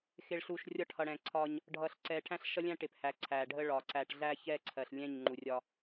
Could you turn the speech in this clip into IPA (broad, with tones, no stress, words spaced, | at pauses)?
xɪ˨ɭɬu˨ʃ rʲɒ˦ʈhʌ˨ɽɛ̃˨ǀʰɒ˦ɲ | ɖʱʌ˨ɬǀɛ˨ ʈʰæ̃˦ɬʃʌ˦lʲæ̃˦ ʈɪ˨phæ˨ ǀʰæ˨ɖʱə˦ɭɒ˨ ǀæ˨ʈ ɮæ˦ çɛ˦ǀʰɜ˨ɬ lʲɛ̃˦˨ɲŋ͡ǃu˨rʲɒ˦